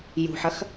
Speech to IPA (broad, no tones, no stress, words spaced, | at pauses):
jṳħɐx